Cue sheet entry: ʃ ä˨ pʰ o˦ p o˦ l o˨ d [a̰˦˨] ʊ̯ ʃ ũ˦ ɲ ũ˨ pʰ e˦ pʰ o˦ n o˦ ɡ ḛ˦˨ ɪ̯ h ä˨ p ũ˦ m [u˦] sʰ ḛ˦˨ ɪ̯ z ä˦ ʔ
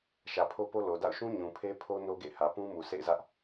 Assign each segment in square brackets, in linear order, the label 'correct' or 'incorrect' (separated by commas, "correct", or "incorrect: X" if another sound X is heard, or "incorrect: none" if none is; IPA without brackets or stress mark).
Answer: correct, incorrect: u˨